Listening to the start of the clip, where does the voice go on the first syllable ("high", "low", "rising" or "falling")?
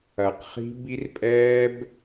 low